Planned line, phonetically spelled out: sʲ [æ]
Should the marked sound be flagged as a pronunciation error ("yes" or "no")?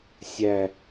no